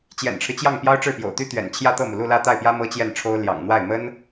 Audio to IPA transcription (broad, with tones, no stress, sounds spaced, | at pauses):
t͡ɕ j ɛ̰˨˩ n ʈ͡ʂʰ ɻ̩˦ t͡ɕ j ɑ˥˩ ŋ p j ɑ˥ ʊ̯ ʈ͡ʂ ɻ̩˥˩ p j o̰˨˩ ʊ̯ t̪ y˥ t̪ ɥ ɛ̰˨˩ n t͡ɕʰ j ä˥˧ t̪ ɤ˥˩ m u˩ l u˥˧ l ä˥˧ t̪ a˥˩ ɪ̯ p j ä˥ m ɤ˥ t͡ɕ j ɛ˥˩ n ʈ͡ʂʰ o˥ ʊ̯ l j ɑ̰˨˩ ŋ n̪ w a˥˩ ɪ̯ m ə˥ n